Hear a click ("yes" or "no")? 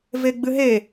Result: no